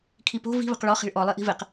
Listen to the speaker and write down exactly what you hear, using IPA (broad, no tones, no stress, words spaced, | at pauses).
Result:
kʰipo̤ vi̤ βə̤qɭɔ χi̤ɭʔɔ lˠiʔi̤vɪq